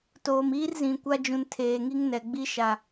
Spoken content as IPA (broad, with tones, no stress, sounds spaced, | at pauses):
t oː˨ m iː˦ r z ĩ˨ kʷ a˦ d͡ʒ ũ˨ n tʰ eː˨ ŋ i˦ ŋ n ɛ˨ ɡ͡b i˦ ʃ a˨